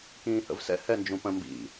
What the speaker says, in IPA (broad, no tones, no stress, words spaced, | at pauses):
kĩːhə̰vsɛ̰ hɛnd͡ʒũpə̃ mbḭ